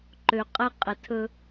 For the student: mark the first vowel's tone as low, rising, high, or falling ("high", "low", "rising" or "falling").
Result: low